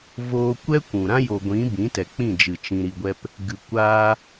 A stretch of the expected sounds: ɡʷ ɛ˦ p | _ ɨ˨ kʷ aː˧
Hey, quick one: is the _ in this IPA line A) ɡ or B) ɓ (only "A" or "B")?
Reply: A